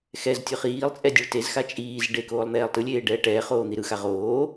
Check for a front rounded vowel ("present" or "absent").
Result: absent